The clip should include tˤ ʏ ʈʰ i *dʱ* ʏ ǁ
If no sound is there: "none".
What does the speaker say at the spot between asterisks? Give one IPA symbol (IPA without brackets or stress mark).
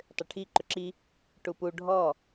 ǃ